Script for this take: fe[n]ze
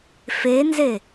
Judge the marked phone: correct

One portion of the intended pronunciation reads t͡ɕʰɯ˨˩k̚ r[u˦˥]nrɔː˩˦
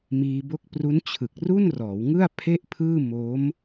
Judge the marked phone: incorrect: u˥˩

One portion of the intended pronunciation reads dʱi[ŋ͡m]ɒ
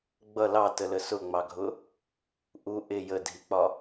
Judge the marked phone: incorrect: k͡p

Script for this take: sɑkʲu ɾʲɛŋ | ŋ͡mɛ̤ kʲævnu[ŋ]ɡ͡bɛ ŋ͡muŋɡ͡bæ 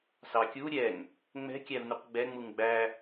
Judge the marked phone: incorrect: q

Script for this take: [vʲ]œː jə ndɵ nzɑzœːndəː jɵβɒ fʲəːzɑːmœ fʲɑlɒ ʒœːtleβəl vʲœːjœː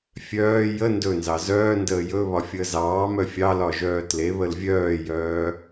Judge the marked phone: incorrect: fʲ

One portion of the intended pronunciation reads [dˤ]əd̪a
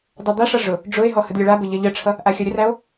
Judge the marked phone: correct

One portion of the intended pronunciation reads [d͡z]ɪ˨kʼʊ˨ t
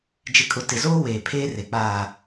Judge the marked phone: incorrect: d͡ʒ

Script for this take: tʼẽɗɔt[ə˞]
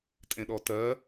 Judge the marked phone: incorrect: ɜ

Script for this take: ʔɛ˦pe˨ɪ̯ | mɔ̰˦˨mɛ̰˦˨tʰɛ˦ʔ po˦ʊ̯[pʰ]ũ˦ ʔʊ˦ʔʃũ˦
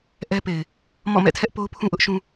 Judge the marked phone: correct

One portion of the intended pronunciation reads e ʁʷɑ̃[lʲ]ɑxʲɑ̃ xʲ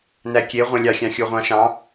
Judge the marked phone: correct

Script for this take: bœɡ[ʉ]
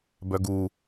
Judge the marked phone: incorrect: u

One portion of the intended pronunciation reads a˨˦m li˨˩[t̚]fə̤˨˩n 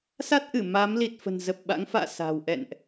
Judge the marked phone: correct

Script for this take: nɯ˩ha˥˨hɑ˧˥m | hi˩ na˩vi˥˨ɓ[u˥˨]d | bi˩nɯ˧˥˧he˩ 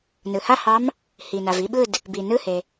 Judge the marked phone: incorrect: ɯ˥˨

